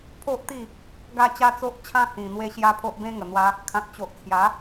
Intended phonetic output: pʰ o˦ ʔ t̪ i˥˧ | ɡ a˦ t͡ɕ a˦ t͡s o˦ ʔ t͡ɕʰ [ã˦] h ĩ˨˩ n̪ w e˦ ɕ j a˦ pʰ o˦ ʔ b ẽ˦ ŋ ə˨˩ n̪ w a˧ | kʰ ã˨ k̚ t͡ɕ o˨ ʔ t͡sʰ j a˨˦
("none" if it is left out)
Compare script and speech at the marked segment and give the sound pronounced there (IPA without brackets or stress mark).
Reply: ã˦